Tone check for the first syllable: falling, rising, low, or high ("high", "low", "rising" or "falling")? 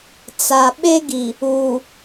low